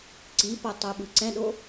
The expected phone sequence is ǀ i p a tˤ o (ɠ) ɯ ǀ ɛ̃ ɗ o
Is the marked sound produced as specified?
no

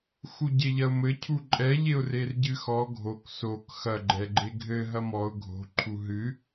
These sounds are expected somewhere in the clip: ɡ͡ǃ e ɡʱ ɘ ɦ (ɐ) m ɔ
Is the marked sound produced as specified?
yes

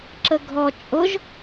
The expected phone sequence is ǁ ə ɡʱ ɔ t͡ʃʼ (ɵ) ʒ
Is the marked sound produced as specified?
no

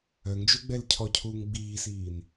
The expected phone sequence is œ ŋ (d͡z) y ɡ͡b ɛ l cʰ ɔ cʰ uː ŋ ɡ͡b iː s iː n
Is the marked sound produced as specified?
no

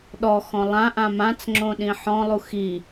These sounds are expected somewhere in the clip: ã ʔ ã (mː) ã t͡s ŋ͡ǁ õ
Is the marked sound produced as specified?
no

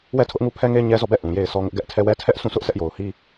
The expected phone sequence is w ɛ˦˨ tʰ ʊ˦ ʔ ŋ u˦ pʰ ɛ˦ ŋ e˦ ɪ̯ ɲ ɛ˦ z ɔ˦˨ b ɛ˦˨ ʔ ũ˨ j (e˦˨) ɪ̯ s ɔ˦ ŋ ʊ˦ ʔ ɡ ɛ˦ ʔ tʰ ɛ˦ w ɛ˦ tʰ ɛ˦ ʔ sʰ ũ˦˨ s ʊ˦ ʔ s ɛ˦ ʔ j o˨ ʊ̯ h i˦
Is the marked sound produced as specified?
yes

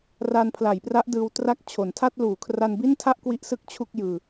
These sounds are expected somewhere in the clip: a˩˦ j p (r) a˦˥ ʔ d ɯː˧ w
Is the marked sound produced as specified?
yes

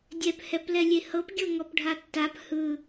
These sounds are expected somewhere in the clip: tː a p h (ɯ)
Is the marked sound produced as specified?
yes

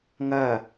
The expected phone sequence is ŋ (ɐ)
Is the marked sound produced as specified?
no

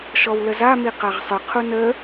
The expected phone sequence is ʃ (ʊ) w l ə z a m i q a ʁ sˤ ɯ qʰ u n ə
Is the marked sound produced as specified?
no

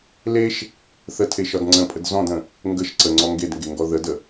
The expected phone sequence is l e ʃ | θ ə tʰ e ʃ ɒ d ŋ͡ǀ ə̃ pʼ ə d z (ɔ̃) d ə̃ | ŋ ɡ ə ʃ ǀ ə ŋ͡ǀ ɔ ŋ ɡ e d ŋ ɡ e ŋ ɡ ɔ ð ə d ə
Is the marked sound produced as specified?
yes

